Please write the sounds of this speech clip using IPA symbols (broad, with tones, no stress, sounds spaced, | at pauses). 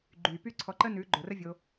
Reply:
ɡ͡ǃ yː˨ p y˦ ǀʰ ɔ˧ ǃ ə˦ n ʉː˨˦ ɡ͡ǃ o˨ r ə˦ vʲ o˧